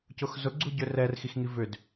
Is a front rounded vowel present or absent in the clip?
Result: present